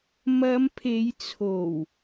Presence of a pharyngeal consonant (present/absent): absent